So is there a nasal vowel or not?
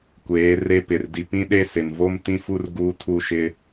yes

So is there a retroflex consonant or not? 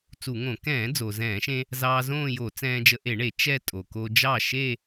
yes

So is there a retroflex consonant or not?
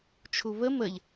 no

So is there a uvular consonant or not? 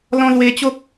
no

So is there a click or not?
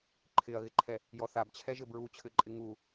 yes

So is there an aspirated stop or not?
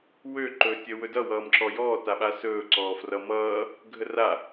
no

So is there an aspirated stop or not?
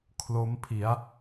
yes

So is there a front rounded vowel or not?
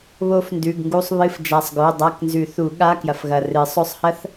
no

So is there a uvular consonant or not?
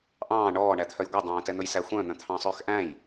no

